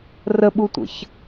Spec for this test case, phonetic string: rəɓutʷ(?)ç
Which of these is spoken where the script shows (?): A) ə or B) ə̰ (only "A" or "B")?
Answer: B